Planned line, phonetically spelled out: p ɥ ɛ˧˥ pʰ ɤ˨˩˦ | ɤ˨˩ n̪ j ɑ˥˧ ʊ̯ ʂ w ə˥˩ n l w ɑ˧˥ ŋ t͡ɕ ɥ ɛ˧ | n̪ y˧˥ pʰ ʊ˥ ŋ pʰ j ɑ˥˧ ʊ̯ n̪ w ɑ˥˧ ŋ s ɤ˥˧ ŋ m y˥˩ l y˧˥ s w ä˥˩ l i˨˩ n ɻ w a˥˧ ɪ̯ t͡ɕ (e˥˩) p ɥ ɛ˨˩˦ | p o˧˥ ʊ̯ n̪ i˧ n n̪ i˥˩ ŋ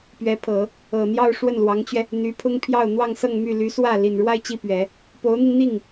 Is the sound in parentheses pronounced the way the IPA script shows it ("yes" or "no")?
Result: no